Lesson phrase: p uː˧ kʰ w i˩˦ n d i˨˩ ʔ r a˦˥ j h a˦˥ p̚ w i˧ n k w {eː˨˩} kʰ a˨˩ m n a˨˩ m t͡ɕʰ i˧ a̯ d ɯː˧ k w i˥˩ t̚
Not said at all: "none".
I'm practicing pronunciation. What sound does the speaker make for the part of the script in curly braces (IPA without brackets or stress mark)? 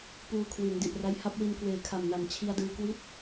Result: eː˨˩